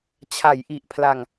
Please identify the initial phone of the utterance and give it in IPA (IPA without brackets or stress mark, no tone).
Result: t͡ɕʰ